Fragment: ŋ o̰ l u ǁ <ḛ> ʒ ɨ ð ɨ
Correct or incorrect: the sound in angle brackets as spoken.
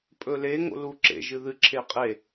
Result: correct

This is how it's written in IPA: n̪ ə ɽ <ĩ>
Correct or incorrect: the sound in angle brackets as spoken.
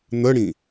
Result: correct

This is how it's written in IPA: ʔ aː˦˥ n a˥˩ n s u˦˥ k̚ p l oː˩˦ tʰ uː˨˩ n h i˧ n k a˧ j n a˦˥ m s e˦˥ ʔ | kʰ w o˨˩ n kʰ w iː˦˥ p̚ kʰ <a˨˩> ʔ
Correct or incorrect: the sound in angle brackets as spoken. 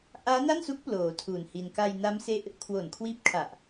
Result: correct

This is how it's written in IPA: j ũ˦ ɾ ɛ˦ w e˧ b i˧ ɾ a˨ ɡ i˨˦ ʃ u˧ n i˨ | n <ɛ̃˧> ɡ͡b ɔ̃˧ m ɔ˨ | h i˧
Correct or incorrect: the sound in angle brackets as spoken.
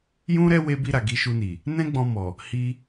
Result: incorrect: ɛ̃˦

